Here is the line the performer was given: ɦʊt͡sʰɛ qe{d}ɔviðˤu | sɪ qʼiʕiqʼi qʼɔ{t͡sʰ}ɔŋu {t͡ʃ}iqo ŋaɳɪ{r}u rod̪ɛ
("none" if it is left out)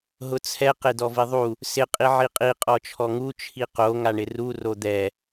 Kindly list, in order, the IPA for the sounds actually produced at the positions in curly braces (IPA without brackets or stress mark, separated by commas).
d, t͡ʃʰ, t͡ʃʰ, r